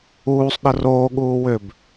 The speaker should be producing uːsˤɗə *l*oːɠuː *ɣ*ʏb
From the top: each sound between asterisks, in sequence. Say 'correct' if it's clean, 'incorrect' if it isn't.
incorrect, incorrect

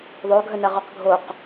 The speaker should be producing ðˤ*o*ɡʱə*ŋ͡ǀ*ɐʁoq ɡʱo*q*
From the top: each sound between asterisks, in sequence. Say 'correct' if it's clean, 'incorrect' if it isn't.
correct, incorrect, correct

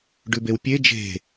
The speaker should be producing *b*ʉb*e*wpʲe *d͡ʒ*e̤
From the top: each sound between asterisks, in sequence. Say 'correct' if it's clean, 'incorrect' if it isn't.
incorrect, correct, correct

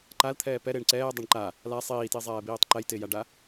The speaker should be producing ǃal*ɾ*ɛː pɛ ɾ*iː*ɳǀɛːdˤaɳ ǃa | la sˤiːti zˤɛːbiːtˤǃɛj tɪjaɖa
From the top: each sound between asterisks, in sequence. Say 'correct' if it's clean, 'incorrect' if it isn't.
incorrect, incorrect

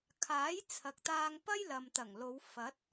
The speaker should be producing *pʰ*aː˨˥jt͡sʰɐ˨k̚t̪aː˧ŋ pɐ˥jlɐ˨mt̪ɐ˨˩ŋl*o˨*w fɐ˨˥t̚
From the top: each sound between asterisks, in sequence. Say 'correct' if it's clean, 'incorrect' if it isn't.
incorrect, incorrect

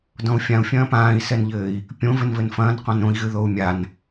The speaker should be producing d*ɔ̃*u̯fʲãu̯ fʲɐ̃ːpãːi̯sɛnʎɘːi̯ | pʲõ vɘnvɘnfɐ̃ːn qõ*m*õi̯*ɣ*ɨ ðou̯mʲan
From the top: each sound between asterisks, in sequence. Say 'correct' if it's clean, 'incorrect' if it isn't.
correct, incorrect, correct

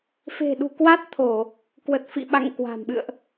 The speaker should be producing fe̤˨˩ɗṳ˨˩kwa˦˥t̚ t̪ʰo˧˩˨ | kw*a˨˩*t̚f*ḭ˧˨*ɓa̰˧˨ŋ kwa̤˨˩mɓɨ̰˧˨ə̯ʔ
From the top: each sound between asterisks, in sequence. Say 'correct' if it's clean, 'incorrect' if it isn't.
incorrect, correct

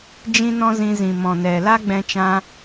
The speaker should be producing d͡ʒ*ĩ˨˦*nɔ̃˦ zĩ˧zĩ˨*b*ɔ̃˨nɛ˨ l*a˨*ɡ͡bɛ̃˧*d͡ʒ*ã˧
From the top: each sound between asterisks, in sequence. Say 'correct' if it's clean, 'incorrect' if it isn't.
incorrect, incorrect, incorrect, incorrect

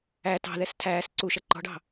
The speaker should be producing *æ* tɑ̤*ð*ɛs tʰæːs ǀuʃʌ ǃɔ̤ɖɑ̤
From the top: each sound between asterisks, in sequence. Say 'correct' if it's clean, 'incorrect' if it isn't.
correct, correct

